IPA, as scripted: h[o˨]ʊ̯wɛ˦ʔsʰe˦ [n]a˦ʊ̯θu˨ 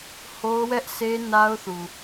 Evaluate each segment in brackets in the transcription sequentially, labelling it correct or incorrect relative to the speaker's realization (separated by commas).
incorrect, correct